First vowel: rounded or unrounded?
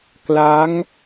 unrounded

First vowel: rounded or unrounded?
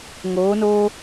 rounded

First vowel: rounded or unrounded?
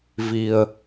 unrounded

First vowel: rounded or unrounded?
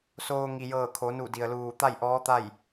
rounded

